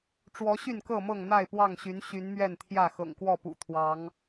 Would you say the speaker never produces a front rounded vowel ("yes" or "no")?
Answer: no